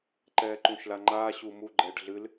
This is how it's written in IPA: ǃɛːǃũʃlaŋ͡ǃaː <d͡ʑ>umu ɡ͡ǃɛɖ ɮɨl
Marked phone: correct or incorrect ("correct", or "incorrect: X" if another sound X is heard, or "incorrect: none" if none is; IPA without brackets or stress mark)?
incorrect: ɕ